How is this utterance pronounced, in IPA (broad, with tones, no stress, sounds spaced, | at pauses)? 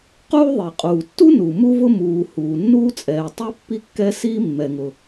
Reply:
q uː˥ ðˤ i˩ qʼ uː˩ tː u˥ n u˩ m u˥ v ʊ˥ m uː˩ h uː˩ nː uː˥ t͡sʼ ɛː˩ tˤ i˥ pː i˥ kː ɛ˥ s iː˥ mː ɛ˩ ŋ ʊ˩